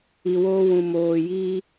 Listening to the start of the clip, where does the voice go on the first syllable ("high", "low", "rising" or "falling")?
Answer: low